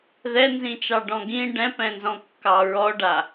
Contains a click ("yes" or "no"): no